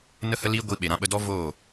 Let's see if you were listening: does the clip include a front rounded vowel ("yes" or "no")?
no